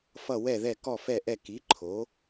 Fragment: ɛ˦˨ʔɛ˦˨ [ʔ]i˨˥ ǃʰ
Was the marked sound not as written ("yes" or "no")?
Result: yes